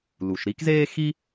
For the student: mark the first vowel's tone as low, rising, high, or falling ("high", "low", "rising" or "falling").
low